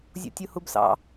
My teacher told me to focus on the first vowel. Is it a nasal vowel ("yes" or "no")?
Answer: no